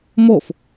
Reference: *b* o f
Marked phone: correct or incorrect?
incorrect